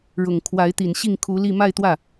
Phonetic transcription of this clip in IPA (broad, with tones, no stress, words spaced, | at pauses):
ɻʊ˨˩ŋkʰwa˧˥ɪ̯ t̪i˨˩nɕi˥˩ŋkʰu˧˥li˥˧ ma˥˧ɪ̯t̪wä˥˩